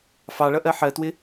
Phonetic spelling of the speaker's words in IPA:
f ɑ ɭ ʌ ʔ ɜ ħ ɜ t w ɪ

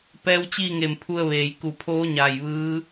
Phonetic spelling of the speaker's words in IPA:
p ɛː˧˥ w t͡ɕ iː˥˨ ŋ e˧˩ m pʰ u˧ ə̯ ʋ eː˩ j k u˧˩ pʰ oː˧˥ ɲ aː˧˩ j ʋ ɯː˧˥

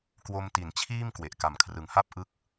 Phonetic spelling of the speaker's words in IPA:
k w o˧ m t i˩˦ n t͡ɕʰ iː˥˩ m k w e˨˩ ʔ k a˨˩ m kʰ r ɯ˩˦ ŋ h a˥˩ p̚ ʔ ɯ˥˩ k̚

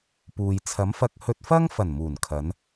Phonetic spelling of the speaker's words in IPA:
p uː˨ j t͡sʰ ɐ˨˥ m f ɐ˧ k̚ h ɵ˧ t̚ f ɐ˥ ŋ f ɐ˨˩ n m uː˨˩ n kʰ ɐ˨˧ n

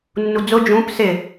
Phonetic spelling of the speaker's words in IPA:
nː u d͡z ʊ d͡ʒ ũ p s ɪ

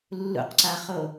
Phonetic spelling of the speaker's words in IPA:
lː ṵ q ǀ a χ o

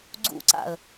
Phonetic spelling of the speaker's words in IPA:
ɡ͡ǀ ṵ ǀ a̰ ə̯

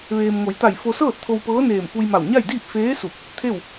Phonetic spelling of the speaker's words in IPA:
ʋ eː˩ m ŋ o˩˧ j t̪ a˧˩ j f o˧ s ɤː˥˨ t̚ t̪ʰ o˧ w p ɤː˧˥ n eː˧˩ m f u˧ j m a˧˩ w ɲ a˥˨ j d iː˥˨ p̚ f eː˧˥ s u˧˩ p̚ | t̪ʰ e˥˨ w

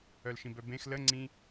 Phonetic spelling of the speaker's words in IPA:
œ l ʃ ĩ b œ b ẽ x l ə ŋ͡ǀ ĩ

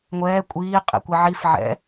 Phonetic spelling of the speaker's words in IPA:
ŋʷ ɛː kʷʼ iː qʼ ḭ kʷ i ʕ i f ʕ ɛ̰

